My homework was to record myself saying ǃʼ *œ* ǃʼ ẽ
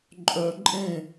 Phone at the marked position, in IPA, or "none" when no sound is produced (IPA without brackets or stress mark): œ